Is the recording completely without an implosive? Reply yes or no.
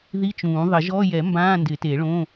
yes